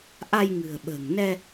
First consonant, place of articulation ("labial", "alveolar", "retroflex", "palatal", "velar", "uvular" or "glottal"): glottal